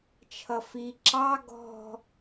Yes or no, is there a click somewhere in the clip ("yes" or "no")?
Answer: yes